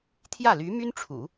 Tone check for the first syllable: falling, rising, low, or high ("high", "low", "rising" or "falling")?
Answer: falling